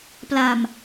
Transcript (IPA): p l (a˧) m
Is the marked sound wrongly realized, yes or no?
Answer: no